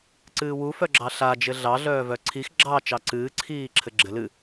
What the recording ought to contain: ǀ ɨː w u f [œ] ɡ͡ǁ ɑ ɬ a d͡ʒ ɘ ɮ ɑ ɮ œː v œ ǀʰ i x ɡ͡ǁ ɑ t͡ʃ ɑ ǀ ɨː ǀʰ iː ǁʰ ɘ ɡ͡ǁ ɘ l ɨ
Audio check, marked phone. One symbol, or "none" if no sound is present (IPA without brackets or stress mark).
œ